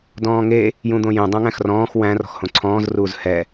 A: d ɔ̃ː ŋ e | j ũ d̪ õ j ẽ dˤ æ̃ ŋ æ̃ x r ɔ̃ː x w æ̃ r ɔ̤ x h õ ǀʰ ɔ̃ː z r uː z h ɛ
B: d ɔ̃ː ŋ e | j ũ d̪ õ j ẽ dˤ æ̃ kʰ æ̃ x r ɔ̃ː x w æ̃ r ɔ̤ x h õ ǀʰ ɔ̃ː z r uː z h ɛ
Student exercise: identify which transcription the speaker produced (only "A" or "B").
A